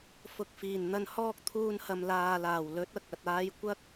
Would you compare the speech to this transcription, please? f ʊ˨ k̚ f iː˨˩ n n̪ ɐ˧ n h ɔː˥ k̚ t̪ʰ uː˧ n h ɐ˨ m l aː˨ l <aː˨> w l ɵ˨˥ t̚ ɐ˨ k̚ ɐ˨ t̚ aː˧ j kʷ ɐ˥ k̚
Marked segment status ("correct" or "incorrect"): incorrect